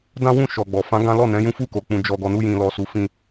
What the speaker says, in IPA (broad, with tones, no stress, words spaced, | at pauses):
dã˦wũ˦˨ ʃɔ˨ɡ͡bɔ˨ fã˨˦ ɡã˦ lɔ˦˨ nɛ̃˨˦jũ˦fu˦˨ko˨ k͡pũ˨ d͡ʒɔ˨ɡɔ˨nu˧jĩ˨ lɔ˨su˨fĩ˧